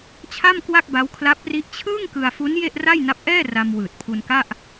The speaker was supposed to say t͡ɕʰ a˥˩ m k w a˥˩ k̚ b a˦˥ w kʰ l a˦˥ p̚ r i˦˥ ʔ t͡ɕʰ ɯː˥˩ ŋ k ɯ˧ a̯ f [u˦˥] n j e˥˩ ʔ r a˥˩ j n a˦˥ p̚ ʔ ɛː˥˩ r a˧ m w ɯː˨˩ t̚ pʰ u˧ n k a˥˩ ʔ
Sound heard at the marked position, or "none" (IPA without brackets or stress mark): u˦˥